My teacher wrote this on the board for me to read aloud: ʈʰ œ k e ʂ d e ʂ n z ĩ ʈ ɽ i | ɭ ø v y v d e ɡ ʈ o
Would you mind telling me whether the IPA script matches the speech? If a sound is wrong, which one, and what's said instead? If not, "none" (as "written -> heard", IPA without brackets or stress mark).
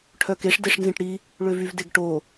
none